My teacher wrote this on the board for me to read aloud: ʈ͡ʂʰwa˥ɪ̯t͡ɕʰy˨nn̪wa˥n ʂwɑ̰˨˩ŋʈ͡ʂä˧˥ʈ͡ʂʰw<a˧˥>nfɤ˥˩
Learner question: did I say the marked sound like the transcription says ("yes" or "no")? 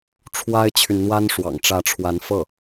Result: yes